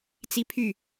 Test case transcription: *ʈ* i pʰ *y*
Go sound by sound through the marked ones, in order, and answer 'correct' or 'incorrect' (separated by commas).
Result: incorrect, correct